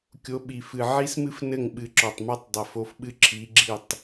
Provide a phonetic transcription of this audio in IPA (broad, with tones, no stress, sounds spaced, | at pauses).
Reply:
kʲ o˨˦ ɓ i˨˩ f ɨ˨˩ ʕ i˦˥ s m ɨ˦˥ f n ɘ˥˩ ŋ ɓ ɨ˨˦ ǁ ɔ˨˩ tˤ m ɔ˦˥ tˤ dˤ ɛ˨˩ f o˨˦ f ɓ ɨ˦˥ ǁʰ i˨˦ ɡ͡ǁ i˥˩ tˤ